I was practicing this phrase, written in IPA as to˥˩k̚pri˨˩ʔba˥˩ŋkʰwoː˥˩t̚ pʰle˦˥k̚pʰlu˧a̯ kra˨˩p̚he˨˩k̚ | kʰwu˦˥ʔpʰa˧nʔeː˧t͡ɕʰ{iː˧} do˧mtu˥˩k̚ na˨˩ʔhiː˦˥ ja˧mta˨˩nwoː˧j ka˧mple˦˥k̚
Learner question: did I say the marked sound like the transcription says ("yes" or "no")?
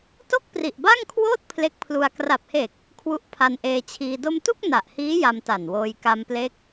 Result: yes